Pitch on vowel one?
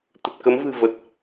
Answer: low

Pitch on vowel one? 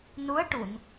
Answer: rising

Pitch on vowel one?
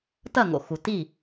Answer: falling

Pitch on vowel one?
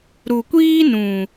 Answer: low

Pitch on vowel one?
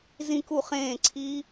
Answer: falling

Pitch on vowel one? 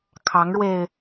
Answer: rising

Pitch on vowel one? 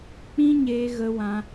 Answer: high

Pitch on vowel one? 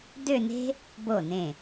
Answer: falling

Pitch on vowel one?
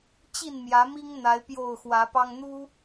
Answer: falling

